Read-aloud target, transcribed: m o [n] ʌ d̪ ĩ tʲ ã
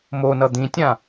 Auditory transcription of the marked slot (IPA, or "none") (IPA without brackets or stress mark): n